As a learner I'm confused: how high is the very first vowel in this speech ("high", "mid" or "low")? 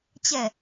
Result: mid